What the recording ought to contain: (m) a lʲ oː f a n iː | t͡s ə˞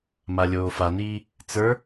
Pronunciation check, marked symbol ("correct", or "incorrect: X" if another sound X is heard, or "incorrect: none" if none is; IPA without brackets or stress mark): correct